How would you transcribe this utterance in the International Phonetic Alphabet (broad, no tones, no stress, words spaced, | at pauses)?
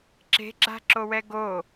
ǁe̤ɡ͡ǁa̤ǁowɛ ɡo